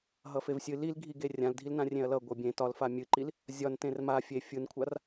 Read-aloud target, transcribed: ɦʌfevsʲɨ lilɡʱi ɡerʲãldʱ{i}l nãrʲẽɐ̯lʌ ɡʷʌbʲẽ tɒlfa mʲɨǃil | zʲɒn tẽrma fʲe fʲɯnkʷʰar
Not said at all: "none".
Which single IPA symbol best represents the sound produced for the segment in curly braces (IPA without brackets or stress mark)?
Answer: i